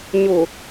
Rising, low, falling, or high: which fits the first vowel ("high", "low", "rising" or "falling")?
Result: low